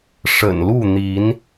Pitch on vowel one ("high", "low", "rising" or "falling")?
low